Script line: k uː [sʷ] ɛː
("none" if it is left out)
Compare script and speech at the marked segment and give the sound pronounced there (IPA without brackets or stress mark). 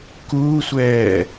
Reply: sʷ